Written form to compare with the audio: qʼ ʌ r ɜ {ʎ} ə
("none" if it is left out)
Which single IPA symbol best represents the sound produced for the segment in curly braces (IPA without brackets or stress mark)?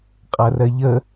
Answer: ʎ